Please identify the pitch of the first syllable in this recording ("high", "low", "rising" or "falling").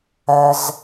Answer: low